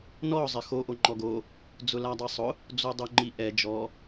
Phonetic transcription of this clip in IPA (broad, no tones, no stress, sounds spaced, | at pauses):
n ɔ zˤ ɪ x o ʔ o ŋ͡ǃ ɔ ɡ o | d͡z ʊ l a dˤ e sˤ ʊ | d͡z o dˤ o ŋ͡ǃ i ʔ ɛ d͡ʒ ɔ